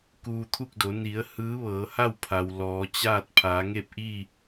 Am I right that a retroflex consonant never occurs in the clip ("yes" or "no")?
yes